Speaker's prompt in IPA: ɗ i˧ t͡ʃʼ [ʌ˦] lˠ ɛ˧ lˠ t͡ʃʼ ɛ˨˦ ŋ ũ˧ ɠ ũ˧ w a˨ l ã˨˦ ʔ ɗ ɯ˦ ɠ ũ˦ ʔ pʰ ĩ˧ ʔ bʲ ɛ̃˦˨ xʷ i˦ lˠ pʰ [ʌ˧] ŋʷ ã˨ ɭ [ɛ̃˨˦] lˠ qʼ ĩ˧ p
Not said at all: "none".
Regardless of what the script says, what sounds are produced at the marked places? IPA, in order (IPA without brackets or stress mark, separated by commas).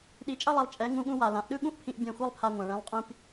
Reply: ʌ˦, a˧, ɛ̃˨˦